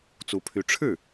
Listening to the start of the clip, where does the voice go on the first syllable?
rising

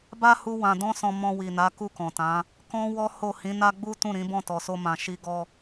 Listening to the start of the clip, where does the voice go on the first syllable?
high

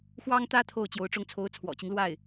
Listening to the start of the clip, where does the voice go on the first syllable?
high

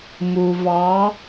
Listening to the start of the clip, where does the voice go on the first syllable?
low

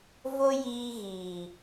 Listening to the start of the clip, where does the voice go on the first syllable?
high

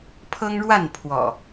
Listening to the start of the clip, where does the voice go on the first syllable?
high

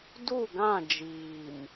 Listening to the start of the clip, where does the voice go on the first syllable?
falling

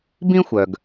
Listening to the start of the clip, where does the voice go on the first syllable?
high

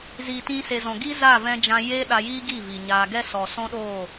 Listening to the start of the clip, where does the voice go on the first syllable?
low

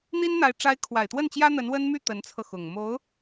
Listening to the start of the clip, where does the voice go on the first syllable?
high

